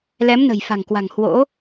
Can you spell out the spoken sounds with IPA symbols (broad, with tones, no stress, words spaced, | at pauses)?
lɛ˨˦mnə̤˨˩jfa̤˨˩ŋkwa̤˨˩ŋ hwo̰˧˥